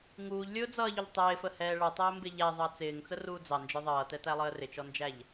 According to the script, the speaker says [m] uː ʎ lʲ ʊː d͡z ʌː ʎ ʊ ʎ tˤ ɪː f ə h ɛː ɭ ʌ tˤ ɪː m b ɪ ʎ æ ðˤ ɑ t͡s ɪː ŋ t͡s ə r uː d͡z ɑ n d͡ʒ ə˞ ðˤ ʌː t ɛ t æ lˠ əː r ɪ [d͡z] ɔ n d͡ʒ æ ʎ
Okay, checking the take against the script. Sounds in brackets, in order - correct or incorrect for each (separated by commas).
incorrect, incorrect